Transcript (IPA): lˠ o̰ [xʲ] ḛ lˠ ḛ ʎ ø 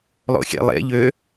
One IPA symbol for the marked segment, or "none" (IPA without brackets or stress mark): xʲ